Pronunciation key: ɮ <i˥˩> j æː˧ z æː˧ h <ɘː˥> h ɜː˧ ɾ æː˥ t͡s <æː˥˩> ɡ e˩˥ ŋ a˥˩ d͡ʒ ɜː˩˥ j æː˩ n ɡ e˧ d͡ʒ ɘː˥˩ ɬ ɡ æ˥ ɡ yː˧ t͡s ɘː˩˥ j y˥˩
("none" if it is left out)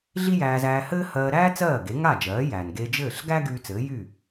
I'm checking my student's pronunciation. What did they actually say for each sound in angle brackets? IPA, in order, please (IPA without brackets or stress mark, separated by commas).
i˥, ɘː˥, ɜː˥˩